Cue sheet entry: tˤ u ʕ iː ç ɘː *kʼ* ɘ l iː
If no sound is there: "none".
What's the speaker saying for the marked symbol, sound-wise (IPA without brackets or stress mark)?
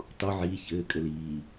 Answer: kʼ